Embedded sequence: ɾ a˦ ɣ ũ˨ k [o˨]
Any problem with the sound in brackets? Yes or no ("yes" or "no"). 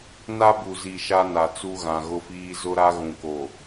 no